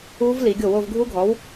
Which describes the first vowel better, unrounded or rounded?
rounded